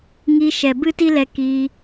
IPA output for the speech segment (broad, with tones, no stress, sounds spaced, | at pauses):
ŋ i˧ ʃ ɛ˨ b ɨ˦ t i˦ l ɛ˧ k i˧